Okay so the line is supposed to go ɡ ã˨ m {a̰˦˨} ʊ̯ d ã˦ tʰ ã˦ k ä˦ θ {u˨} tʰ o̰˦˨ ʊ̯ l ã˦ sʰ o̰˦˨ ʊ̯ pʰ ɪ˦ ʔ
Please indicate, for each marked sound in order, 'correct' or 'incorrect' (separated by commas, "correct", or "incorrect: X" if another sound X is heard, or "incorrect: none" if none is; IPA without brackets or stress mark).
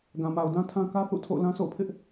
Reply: incorrect: a˨, incorrect: ṵ˦˨